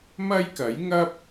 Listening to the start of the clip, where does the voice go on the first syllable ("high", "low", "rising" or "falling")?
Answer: high